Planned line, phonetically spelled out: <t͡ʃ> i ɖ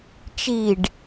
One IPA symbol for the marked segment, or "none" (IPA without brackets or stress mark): t͡ʃ